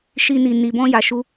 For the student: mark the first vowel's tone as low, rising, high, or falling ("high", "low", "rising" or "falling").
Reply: high